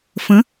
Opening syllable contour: rising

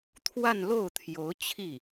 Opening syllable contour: falling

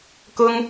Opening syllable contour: high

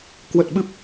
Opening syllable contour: low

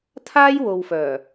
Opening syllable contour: high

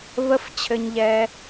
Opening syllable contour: high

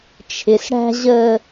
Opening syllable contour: low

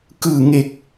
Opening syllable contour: low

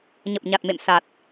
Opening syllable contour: low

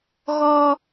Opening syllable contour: high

